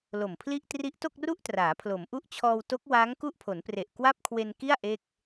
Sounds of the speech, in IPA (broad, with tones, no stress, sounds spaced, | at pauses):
l o˨˩ m pʰ l i˥˩ ʔ t r i˦˥ ʔ t o˥˩ k̚ r u˥˩ ʔ t r aː˩˦ pʰ l o˩˦ m ʔ u˦˥ ʔ t͡ɕʰ ɔː˧ w t o˦˥ k̚ w aː˦˥ ŋ k u˥˩ ʔ pʰ o˩˦ n p r e˨˩ ʔ k w a˥˩ p̚ kʰ w e˧ n k i˥˩ a̯ ʔ e˥˩ k̚